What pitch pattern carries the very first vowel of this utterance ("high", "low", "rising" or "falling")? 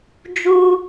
high